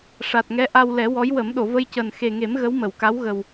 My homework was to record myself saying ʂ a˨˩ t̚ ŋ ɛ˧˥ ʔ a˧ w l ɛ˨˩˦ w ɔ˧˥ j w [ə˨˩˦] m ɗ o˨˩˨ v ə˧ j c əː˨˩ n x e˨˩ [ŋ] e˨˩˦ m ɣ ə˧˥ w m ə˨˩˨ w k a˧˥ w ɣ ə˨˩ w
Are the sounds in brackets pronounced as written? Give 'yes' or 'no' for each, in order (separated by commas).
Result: yes, yes